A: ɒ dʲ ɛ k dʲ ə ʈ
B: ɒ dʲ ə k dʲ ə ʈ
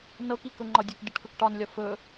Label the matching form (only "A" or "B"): B